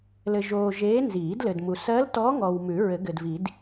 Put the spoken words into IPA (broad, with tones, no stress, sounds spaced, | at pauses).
l ɘ˨ ʒ oː˨ ʒ eː˧˥ n z iː˨˩˦ d l ɘ˨ d m u˨ s ɜ˧˥ l t ɔ˧˥ ŋ ɔ˨ w m ʉ˨˩˦ ɹ ɘ˨˩˦ ɡ ɘ˨ d v i˨˩˦ d